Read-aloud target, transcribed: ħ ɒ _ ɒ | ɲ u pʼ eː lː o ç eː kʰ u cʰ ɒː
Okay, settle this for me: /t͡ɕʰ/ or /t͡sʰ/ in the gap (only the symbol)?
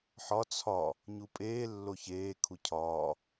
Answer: t͡sʰ